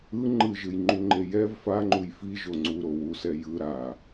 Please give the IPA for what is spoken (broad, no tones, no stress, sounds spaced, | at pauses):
ɯ ŋ͡ǃ ɯ ʒ ɯ j ŋ͡ǃ u ŋ͡ǃ e j ɛ v f a ŋ͡ǃ u j f i ʒ o ŋ͡ǀ u ɾ o w u s ɛ j ɯ ɾ a